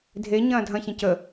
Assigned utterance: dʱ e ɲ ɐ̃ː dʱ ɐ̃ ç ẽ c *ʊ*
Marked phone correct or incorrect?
incorrect